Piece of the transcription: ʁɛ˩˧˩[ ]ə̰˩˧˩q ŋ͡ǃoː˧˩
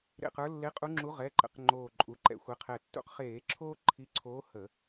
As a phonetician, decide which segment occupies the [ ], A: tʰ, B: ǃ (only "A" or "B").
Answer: B